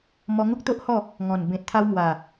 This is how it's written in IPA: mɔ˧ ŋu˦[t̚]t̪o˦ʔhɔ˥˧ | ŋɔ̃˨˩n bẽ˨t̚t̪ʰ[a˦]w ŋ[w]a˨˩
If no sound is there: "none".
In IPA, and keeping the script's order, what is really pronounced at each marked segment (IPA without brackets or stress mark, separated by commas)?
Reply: k̚, a˧, w